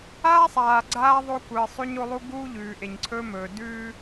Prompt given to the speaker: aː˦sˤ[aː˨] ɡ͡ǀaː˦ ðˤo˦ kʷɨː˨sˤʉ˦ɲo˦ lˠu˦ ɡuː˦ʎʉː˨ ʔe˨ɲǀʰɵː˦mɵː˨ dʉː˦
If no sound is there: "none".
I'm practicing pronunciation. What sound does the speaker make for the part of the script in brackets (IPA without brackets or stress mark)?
aː˨